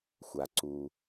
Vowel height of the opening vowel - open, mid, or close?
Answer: open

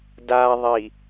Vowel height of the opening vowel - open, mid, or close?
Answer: open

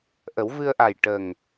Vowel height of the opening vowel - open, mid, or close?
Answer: mid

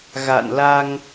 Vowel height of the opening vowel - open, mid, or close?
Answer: open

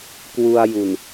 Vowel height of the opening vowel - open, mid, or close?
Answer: close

